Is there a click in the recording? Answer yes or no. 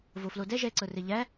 yes